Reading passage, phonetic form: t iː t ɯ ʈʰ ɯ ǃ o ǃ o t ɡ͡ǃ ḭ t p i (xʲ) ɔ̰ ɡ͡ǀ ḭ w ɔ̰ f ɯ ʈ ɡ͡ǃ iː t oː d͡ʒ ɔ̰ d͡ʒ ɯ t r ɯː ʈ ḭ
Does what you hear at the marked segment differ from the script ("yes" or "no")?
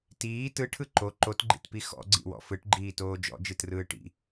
yes